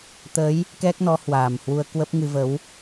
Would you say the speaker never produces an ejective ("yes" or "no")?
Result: yes